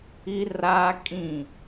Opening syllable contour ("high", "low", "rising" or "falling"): high